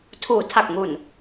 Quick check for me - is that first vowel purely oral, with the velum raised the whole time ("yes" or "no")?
yes